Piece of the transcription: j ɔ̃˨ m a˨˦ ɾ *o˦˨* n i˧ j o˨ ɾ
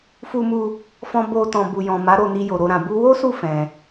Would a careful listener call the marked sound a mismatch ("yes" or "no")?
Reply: no